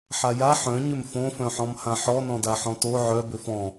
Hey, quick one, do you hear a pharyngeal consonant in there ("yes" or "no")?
yes